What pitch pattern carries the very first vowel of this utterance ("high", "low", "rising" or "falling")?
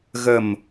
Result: low